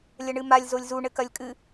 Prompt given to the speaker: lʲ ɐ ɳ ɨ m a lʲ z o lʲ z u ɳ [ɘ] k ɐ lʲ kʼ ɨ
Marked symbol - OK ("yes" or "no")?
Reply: yes